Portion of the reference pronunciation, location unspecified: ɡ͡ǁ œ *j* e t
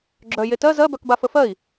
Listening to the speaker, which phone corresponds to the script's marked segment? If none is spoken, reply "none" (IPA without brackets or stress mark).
j